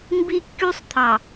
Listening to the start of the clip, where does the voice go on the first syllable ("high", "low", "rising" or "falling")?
high